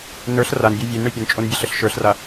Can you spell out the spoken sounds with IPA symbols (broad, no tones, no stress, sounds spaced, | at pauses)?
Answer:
n ə˞ ɬ r a n bʲ ə˞ vʲ e n ɳ e pʲ ə n t͡ʃʼ o n bʲ ɛ ɬ ə ɬ ʃ ə˞ ɬ r a